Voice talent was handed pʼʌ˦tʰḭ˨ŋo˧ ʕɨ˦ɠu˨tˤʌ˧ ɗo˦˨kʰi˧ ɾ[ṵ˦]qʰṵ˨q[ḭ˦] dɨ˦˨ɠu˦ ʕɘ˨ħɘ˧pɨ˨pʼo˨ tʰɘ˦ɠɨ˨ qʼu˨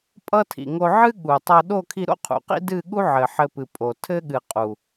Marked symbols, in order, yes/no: no, yes

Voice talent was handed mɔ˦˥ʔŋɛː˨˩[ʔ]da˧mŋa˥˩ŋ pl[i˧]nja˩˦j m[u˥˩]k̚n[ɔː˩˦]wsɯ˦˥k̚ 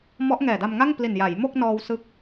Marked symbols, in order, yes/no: no, no, no, no

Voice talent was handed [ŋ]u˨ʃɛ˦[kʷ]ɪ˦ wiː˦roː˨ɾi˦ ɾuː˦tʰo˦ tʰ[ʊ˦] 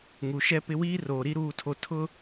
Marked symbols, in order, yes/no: yes, no, yes

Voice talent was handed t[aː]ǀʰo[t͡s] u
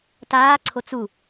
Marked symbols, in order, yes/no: yes, yes

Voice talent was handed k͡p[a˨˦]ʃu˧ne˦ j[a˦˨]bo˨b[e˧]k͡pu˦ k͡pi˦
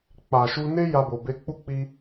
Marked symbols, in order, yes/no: no, no, yes

